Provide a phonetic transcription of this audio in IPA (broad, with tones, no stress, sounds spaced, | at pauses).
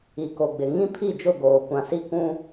i˨ k o˨ ɡ͡b ɪ˨ ŋ ĩ˦ pʰ i˦˨ d͡ʒ ʊ˦˨ ɡ oː˨ kʷ ã˨ s i˦ k ũ˦